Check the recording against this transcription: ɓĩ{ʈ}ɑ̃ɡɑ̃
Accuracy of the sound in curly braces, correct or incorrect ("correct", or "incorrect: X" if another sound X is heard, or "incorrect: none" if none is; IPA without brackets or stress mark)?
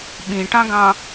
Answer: correct